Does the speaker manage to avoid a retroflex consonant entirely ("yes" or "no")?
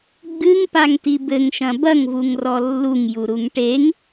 no